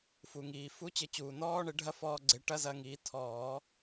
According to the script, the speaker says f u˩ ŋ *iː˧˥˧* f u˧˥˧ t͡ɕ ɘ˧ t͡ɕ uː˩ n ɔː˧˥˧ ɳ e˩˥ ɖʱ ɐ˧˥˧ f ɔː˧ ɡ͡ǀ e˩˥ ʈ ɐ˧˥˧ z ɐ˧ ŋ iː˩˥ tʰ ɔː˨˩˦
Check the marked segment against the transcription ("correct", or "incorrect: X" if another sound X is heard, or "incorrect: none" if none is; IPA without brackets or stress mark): incorrect: iː˩